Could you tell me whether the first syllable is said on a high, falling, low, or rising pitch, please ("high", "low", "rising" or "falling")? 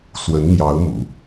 rising